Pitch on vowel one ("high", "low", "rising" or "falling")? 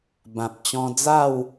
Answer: low